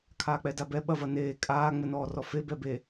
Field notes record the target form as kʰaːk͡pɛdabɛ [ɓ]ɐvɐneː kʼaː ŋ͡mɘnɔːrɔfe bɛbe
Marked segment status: correct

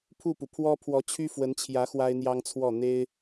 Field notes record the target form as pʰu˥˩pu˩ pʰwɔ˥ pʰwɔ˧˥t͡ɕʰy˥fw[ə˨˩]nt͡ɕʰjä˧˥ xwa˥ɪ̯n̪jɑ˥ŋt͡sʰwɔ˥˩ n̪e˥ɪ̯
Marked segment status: incorrect: ə˧˥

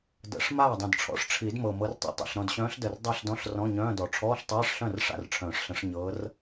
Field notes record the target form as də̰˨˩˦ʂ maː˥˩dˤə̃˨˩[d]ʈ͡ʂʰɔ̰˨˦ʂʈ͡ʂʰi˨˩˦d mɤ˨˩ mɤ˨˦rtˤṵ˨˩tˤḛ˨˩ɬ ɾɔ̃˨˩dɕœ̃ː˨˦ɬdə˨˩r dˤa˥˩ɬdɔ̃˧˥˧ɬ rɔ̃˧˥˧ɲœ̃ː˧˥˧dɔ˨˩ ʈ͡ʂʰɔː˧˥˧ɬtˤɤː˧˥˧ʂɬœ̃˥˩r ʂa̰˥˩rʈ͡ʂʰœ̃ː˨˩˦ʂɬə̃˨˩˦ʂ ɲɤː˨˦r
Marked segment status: correct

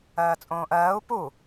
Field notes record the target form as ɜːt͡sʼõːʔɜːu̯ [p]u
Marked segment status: correct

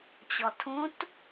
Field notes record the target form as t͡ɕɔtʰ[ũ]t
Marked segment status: correct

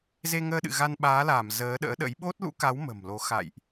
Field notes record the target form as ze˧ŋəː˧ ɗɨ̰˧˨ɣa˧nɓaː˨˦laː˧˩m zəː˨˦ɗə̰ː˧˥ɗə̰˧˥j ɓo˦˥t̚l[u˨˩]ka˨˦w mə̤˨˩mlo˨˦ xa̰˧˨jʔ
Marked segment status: incorrect: ṵ˧˥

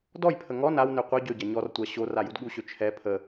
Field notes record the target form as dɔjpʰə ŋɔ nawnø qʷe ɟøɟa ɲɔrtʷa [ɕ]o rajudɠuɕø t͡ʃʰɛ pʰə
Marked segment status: correct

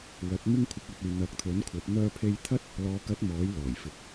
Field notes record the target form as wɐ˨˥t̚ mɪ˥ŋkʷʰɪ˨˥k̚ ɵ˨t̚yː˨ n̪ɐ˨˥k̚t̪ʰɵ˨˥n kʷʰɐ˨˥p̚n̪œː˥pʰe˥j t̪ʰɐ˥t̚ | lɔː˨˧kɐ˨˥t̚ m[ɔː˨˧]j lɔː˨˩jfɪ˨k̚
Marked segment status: incorrect: ɔː˨˥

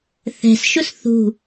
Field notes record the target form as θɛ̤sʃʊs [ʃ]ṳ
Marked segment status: incorrect: θ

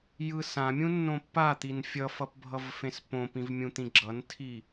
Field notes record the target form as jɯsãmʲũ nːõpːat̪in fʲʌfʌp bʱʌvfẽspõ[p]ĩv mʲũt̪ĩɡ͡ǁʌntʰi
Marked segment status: correct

